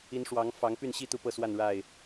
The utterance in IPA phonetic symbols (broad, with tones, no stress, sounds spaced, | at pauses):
i˨˦ n ʂ w ɑ˨˦ ŋ f ɑ˨˦ ŋ p y˥˨ n ɕ i˥˨ t̪ u˥˨ p ɤ˥˨ s w a˥˨ n ɻ a˥˨ ɪ̯